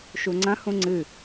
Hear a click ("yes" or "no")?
yes